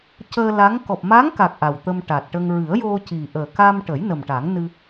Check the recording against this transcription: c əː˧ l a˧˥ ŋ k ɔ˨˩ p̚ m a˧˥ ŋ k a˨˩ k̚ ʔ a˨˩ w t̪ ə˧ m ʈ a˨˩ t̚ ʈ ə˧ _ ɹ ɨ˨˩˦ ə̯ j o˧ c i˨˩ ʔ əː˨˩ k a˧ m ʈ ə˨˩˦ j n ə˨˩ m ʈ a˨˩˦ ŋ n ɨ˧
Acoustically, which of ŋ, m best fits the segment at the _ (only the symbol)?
ŋ